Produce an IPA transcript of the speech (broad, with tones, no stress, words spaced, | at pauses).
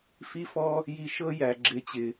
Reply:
fi˦fɔ˦ | ji˧ʃɤ˦ jæ˨ ɡ͡ǁɪ˨˦t͡ɕɪ˨